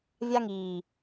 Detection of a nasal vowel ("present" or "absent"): absent